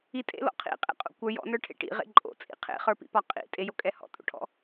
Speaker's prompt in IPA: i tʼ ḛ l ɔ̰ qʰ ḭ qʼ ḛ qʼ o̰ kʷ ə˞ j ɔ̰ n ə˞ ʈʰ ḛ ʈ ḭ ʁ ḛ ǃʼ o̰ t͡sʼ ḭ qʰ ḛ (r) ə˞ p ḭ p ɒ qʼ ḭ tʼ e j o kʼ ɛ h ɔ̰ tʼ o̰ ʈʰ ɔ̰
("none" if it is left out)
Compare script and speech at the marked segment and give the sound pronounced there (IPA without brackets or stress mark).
χ